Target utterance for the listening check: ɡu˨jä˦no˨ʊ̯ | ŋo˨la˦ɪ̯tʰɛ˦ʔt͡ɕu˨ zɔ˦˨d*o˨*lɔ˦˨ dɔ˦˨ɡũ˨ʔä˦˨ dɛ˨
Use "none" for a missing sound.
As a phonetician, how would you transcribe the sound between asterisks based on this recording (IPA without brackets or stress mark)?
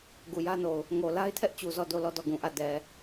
o˦˨